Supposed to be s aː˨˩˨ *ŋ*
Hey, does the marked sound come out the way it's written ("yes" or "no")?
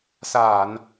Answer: no